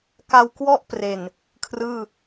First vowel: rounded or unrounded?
unrounded